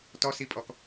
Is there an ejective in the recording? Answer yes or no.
yes